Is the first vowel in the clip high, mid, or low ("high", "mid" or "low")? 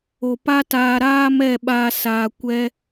mid